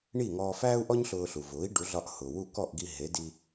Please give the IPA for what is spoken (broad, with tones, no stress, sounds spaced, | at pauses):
ɳ i˥˩ ŋ ɔː˧ f æː˥ u̯ ʔ ɔ˥ ɲ ɬ ʊː˧ ɬ u˩ v ʊː˩˥ i̯ ɖ u˩˥ ɮ ɒ˧ ʔ h ʊː˩ w u˥˩ k ɔ˥˩ ʔ ɡ i˧ ɦ e˩˥ d i˧